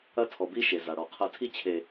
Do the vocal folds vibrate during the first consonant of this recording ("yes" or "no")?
no